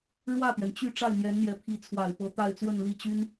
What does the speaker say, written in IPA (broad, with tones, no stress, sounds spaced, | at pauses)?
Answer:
ɻ w ä˥˩ t̪ ɥ ɛ˩ n t͡ɕ y˥˧ ʈ͡ʂ a˥˩ ɪ̯ n̪ j ɛ˧˥ n n̪ j ɛ˧˥ pʰ i˧˥ t͡sʰ w a˨˩ ɪ̯ p ɤ˧˥ t̪ a˥˧ ɪ̯ t͡s w ə˥˧ n l i˥˩ t͡ɕ y˥ n